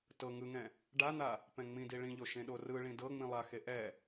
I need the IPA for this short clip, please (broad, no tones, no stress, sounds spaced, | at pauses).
t ɤ ŋ ɯ ŋ ɛ̃ | ɖ a n̪ a | p ɛ̃ ŋ͡m ĩ d i ɭ ĩ ʎ o ʃ ẽ ɗ o r ɯ ɭ ĩ d ɤ ŋ͡m ĩ lˠ a x e ʔ ɛ